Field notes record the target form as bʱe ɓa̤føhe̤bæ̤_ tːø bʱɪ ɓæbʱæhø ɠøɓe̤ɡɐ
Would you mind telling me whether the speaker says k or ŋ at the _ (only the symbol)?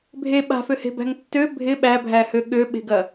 ŋ